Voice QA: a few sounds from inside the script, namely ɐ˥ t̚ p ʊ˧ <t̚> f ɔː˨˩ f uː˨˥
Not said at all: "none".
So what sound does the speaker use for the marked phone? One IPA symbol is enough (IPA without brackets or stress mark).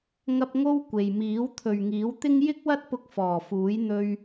k̚